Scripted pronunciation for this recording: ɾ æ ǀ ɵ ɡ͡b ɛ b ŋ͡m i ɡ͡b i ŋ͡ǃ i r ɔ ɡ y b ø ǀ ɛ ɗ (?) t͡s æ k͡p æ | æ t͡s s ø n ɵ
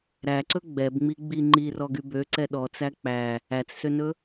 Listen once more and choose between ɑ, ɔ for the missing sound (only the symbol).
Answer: ɔ